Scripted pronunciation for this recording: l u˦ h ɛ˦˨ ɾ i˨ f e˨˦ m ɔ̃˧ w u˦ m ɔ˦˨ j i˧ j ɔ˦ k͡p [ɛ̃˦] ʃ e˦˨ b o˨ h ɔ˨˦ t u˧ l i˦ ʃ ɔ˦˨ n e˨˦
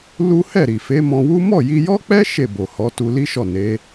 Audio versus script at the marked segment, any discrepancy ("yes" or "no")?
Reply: yes